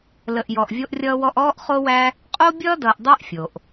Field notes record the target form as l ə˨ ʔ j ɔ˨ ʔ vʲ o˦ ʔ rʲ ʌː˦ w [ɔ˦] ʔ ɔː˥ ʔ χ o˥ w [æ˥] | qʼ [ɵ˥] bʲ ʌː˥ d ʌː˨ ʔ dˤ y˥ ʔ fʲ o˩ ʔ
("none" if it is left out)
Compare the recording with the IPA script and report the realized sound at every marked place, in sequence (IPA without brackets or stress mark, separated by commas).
ɔ˦, æ˥, o˥